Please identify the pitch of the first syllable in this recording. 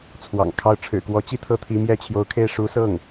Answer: low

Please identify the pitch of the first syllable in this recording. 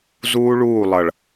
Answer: high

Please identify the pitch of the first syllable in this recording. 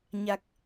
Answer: low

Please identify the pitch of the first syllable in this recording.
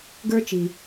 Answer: high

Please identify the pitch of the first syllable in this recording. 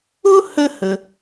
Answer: high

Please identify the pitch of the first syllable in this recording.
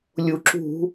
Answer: low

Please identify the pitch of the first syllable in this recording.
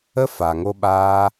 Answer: high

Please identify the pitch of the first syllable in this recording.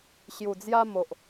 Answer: low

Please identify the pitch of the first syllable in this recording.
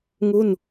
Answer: falling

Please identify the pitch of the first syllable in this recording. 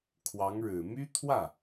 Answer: rising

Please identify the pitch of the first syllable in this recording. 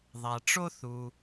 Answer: low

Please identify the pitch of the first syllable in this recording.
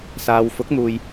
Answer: low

